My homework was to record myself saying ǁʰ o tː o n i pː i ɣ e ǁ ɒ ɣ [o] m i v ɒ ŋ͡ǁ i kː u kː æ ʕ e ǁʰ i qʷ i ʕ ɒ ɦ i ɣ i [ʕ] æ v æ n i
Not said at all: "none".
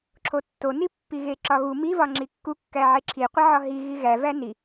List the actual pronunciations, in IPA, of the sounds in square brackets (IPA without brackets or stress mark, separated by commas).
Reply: u, ɣ